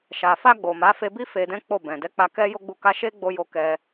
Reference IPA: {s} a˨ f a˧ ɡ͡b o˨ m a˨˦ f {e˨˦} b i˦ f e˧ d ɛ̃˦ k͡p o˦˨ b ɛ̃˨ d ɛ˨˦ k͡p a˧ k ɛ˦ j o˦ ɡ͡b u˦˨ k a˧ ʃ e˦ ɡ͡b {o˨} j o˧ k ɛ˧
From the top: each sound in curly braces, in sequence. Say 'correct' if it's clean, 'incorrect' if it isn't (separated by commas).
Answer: incorrect, incorrect, incorrect